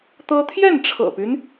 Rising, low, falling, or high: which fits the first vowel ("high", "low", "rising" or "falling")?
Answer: high